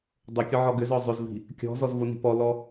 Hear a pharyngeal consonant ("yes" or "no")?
yes